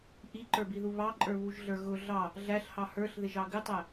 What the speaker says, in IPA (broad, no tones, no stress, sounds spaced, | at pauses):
ʔ i ǃ ə˞ b i ð u β ɑ ǃʼ ə˞ β u ʒ ɮ ə˞ ɣ ʊ ɮ ɑ | ɮ æ ɬ h ɑ h ə˞ ɬ ð ɪ ʒ ɑ ɡ ɪ tˤ æ